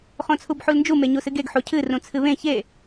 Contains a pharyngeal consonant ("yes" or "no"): yes